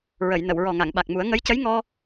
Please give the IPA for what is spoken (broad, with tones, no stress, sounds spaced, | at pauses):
ɹ ə˨˩˨ j n ə˨˩˨ w ɹ ɔ˨˩ ŋ a˨˩˨ ŋ ɓ a˨˩ k̚ m u˨˩˦ ə̯ ŋ ə˧˥ j c ə˧˥ j ŋ ɔ˧